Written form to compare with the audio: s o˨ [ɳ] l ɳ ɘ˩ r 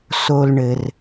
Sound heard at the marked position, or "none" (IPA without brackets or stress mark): none